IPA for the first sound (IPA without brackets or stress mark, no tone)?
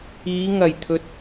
iː